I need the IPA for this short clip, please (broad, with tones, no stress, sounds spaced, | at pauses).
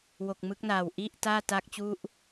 w o˨˩ k̚ m ɯ˦˥ k̚ n aː˨˩ w ʔ i˥˩ ʔ t aː˥˩ t a˥˩ k̚ t͡ɕ u˥˩ ʔ